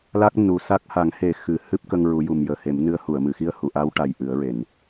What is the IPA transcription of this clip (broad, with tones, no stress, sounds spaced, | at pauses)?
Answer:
l a˦˥ k̚ n u˨˩ s a˦˥ k̚ h a˨˩˦ ŋ h e˨˩˦ x ɨ˨˩˦ h ɨ˦˥ p̚ k ə˧ ŋ ɹ u˨˩˦ j u˨˩ m j əː˨˩ h e˨˩˦ m n ɨ˧˥ ə̯ h u˨˩˨ ə̯ m ɨ˨˩˨ x i˧ ə̯ h u˨˩˨ ʔ a˧˥ w ʈ a˨˩ j ʔ ɨ˨˩˦ ə̯ ɹ e˨˩˨ n